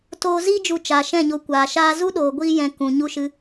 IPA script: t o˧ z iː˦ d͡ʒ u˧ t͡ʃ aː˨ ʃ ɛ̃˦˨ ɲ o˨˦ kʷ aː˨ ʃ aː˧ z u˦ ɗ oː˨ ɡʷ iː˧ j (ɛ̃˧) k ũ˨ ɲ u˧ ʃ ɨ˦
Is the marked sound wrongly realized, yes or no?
yes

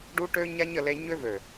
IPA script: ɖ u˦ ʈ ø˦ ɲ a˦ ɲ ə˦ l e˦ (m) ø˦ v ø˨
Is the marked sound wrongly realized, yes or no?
yes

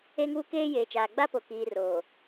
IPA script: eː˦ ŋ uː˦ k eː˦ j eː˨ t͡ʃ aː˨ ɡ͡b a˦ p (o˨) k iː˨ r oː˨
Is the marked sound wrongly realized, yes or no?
no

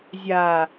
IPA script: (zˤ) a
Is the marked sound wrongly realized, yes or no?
yes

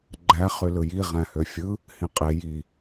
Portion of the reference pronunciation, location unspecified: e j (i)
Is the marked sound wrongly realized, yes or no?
no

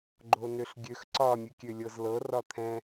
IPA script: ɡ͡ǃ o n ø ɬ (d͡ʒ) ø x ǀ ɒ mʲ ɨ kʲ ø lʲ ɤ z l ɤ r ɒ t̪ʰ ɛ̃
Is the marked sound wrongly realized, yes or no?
yes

